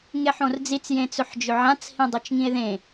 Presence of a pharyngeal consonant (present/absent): present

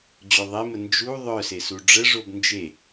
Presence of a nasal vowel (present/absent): absent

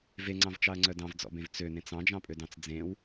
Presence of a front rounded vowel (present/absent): present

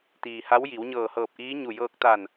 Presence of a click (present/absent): absent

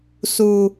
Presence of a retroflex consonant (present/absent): absent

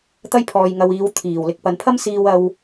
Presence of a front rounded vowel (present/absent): absent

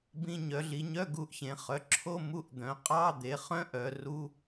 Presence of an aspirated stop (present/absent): present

